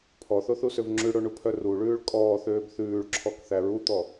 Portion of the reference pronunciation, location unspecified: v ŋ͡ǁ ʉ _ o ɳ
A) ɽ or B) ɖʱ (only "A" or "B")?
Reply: A